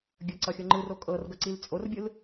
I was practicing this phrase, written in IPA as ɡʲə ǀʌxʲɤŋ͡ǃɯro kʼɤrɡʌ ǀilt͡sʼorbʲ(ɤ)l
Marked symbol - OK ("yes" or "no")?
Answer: no